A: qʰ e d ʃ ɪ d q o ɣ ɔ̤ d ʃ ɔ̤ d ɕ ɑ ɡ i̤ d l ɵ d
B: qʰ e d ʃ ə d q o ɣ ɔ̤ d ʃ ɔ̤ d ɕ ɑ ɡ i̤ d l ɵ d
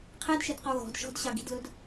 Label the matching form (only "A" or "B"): A